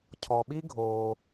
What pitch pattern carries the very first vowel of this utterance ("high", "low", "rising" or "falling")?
low